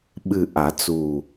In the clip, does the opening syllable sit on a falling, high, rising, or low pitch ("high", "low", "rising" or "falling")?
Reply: low